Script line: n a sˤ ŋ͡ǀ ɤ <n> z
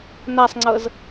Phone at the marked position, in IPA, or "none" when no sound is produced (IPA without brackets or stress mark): none